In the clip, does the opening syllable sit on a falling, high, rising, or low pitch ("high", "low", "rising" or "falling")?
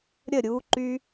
falling